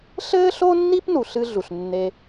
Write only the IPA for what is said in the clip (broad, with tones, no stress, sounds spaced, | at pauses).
ɬ ɘː˥ ɬ o˥ nː i˥ p n u˩ ɬ ɨ˥ ɮ u˩ ɬ nː e˧